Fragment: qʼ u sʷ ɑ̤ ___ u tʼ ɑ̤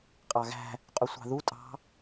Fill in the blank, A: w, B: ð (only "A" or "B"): B